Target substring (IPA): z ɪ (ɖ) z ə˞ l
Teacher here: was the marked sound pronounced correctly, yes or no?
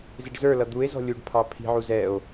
yes